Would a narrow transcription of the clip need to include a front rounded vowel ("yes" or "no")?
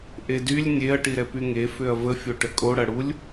yes